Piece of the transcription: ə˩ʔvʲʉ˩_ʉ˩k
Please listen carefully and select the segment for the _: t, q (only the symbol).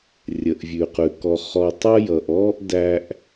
q